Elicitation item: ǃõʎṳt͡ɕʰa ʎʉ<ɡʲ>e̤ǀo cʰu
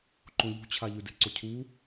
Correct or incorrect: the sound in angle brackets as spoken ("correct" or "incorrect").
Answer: incorrect